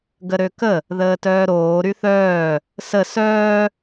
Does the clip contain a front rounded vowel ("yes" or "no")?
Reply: yes